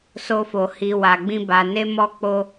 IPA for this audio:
s o˧ f o˨ h i˨ w a˨ ɡ͡b ĩ˧ b a˨ n e˧ m ɔ˧ k͡p o˧

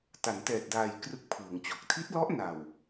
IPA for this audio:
t a˩˦ n t ɛː˨˩ t̚ d aː˨˩ j k r ɯ˦˥ k̚ pʰ ɯː˩˦ ŋ t͡ɕ o˨˩ k̚ tʰ i˦˥ t̚ l ɔ˦˥ ʔ n a˨˩ w

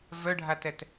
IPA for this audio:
v œ ɖʱ a t ɛ t

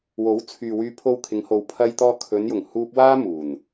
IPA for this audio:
w o˨˥ w t͡sʰ yː˨ w yː˧ pʰ o˧ w kʰ ɪ˨˧ ŋ h o˨ w pʰ ɐ˧ j t̪ ɔː˧ kʰ ɵ˨˧ n j ʊ˨˩ ŋ h uː˧ p̚ w aː˥ m uː˨˩ n

